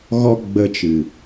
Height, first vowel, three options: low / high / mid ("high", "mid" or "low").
mid